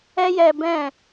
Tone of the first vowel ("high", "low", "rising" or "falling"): high